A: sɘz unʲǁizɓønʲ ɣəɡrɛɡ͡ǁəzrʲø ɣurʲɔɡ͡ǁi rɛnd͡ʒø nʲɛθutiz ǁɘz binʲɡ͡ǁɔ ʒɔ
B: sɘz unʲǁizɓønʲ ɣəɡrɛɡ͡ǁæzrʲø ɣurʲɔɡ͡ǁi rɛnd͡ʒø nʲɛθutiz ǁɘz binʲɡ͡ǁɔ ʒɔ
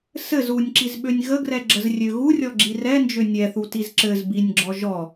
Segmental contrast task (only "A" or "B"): A